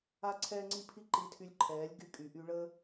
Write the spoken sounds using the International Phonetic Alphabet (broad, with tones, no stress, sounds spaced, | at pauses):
a˦ ǀʰ ɛː˦ ŋ͡ǀ i˦ pʰ i˦ ǃ i˧ tʰ y˧ lʲ ǃʰ ɛː˨˦ lʲ ɡ y˧ kʼ y˨ ʔ y˧ ɭ əː˦